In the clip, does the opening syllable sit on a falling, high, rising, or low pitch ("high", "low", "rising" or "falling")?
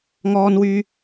high